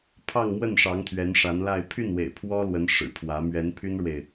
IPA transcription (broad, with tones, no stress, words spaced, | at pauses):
pʰɑ˥˧ŋmwə˥˩nʂɑ˧˥ŋ t̪ʰɥɛ˧˥nʂa˧˥nla˥˧ɪ̯ pʰy˥˩nwḛ˨˩ɪ̯ pʰwɔ˥lwə˧˥n ʂɻ̩˨˩pʰwä˧˥ mɥɛ˧˥npʰy˥nɻwe˨ɪ̯